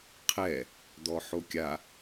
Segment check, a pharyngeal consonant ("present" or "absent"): present